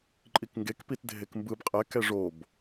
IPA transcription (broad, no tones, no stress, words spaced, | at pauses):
ǃʼikŋɡek pitdʱekmbɯb qʼɛ kɛʐob